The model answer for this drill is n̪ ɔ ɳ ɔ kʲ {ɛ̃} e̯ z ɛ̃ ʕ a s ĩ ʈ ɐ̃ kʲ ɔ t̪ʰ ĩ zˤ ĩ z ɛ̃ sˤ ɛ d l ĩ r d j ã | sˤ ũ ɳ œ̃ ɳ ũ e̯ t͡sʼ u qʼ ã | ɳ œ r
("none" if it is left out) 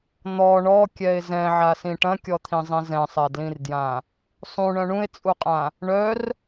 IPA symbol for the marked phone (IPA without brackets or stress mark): ɛ